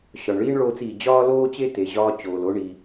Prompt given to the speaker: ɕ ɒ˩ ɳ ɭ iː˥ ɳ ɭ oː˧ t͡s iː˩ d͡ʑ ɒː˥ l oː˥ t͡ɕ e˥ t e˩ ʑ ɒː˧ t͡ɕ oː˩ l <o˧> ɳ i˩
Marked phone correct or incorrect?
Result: correct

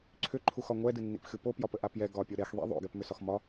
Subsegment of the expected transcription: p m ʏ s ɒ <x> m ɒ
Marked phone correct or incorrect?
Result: correct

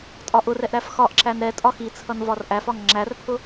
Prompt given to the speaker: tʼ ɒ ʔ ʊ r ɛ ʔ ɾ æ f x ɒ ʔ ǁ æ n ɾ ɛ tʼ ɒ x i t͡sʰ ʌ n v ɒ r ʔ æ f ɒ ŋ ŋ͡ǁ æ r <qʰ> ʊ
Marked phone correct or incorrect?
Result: incorrect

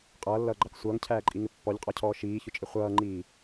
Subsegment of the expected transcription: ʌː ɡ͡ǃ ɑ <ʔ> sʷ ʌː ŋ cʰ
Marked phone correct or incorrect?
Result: incorrect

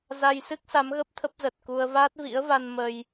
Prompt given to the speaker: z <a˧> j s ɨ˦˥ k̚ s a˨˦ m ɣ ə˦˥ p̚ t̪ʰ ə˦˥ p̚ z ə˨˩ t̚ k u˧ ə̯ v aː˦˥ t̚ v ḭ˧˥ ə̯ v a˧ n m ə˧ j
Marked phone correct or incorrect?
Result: correct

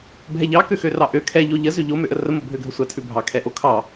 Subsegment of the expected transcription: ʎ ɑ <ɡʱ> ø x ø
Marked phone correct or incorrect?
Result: incorrect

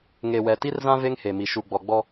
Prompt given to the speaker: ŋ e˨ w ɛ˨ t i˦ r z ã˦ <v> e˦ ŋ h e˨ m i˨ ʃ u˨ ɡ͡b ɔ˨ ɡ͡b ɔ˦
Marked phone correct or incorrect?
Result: correct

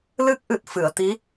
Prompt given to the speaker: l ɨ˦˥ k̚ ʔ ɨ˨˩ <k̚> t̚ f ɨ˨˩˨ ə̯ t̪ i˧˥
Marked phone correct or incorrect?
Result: incorrect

